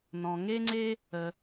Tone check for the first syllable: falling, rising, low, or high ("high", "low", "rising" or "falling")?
low